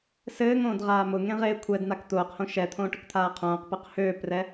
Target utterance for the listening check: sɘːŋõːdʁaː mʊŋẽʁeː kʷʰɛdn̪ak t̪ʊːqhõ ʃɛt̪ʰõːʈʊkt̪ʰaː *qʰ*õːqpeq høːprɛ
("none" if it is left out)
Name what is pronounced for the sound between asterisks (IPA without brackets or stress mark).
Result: qʰ